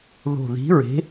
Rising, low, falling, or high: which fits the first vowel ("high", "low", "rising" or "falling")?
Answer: low